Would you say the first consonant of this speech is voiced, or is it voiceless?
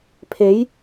voiceless